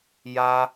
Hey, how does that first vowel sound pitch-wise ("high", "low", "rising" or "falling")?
high